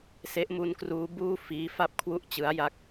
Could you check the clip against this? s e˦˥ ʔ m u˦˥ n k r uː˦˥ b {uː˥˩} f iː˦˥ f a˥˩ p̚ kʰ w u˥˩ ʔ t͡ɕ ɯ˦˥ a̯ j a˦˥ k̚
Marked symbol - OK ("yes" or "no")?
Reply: yes